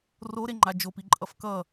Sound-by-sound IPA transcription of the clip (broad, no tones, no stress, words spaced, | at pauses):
roɾeŋ͡ǃa d͡ʒopiǃʼʌf kʌ